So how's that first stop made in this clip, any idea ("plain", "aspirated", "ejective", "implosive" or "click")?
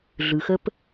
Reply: plain